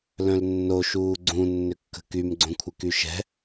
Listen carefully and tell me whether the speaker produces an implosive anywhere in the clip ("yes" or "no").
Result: no